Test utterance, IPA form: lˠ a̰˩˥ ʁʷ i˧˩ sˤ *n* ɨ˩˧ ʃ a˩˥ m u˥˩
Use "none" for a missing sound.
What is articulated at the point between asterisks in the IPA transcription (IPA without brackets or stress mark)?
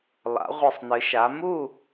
n